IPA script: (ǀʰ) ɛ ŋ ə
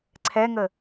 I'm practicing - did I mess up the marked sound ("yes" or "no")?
no